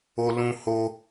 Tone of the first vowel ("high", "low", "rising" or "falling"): high